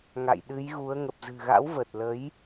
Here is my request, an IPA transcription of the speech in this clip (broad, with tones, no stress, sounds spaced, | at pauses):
ŋ a̰˧˨ j ɗ ɨ˨˦ j ɣ u˨˦ ə̯ ŋ ə˨˩ p̚ z ɨ̤˨˩ ɣ a̰˧˥ w v ə˨˩ t̚ l ə˨˦ j